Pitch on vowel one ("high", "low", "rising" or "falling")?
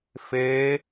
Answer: rising